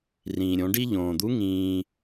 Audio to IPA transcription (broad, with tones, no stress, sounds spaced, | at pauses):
r ĩː˩ ɾʲ õ˩˧ ɖ i˥ ʎ õː˩ d̪ u˧˥ ŋ ĩː˧